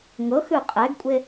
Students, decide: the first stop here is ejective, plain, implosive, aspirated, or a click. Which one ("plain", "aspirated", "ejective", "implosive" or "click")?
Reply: ejective